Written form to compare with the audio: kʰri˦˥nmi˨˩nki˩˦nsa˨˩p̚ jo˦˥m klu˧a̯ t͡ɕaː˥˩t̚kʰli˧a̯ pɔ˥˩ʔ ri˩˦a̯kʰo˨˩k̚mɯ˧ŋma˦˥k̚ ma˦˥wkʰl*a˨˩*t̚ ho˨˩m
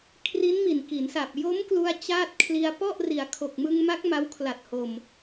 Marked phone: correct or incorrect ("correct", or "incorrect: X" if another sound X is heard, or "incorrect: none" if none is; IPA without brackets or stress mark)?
correct